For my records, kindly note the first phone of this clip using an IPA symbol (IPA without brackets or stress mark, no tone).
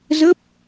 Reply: z